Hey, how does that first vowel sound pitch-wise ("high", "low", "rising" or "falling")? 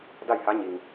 falling